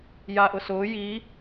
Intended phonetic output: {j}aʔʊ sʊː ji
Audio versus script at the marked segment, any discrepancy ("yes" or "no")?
no